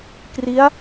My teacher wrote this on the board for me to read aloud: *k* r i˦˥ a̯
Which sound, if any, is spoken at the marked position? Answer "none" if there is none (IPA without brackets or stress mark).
k